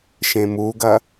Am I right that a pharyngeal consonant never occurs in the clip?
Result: yes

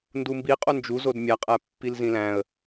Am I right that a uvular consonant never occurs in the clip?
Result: no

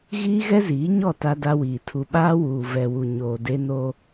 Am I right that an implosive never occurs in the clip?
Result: no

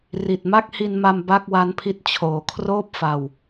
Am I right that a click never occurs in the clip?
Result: yes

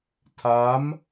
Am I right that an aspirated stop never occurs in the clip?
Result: no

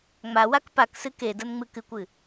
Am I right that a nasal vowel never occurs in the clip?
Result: yes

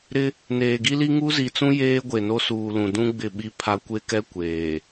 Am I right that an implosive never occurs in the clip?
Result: no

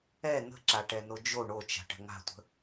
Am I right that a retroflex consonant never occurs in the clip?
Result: no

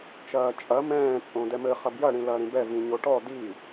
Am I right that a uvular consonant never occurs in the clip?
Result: no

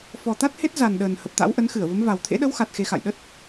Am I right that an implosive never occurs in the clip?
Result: no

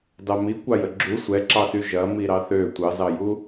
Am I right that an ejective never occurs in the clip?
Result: yes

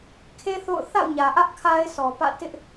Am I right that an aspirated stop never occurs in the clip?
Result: no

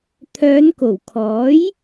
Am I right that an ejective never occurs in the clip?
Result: yes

